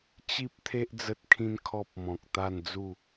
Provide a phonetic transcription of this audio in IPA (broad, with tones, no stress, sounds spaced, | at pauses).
t͡ɕ i˦ p̚ t̪ʰ e˦ ʔ d͡z ə˦ t̚ kʰ ĩ˦ n kʰ ɔ˦ p̚ m ɔ̃˨ k̚ t̪ a˥˧ n d͡z u˥˧